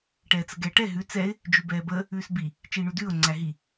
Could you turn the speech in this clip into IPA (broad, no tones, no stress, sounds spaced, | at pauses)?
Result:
ʈ ɛː t͡s ə ɡ ɛː ʈ ɛ ɦ ʉ t͡s ɛ ɪ̯ | d͡ʒ ʉ b ɛː b əː | ʉː s b i | t͡ʃ iː ɳ ʉ d ʉː ʊ̯ ŋ͡ǀ æ ɦ i